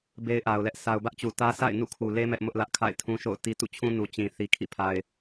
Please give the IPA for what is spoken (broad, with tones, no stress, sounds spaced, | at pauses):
b e˦ ɪ̯ ʔ a˨ ʊ̯ l ɛ˦ ʔ sʰ a˨ ʊ̯ b ä˦ ʔ t͡ɕ u˨ t ä˦ s a̰˦˨ ɪ̯ n ṵ˦˨ kʰ u˨ l e˦ m ɛ˦ ʔ m ʊ˦ ʔ l ä˦ ʔ kʰ a̰˦˨ ɪ̯ tʰ ũ˦ ʃ o̰˦˨ ʊ̯ t i˦ t ṵ˦˨ t͡ɕʰ ũ˦ n u˨ t͡ɕ ĩ˨ θ i˨ kʰ ḭ˦˨ pʰ a˨ ɪ̯